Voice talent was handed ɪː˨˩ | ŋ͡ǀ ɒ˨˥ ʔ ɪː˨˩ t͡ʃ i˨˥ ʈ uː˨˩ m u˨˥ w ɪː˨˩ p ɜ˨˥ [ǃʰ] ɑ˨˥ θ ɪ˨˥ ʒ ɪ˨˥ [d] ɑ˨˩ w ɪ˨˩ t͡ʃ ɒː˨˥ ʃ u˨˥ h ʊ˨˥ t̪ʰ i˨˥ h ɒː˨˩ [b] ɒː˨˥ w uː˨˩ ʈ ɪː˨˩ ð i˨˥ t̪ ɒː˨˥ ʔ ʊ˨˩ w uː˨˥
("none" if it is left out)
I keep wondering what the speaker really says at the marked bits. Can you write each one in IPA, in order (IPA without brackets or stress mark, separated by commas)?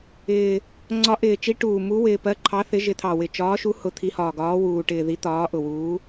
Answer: ǃʰ, t̪ʰ, ɡ